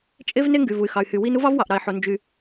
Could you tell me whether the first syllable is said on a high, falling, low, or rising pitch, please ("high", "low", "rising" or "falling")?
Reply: high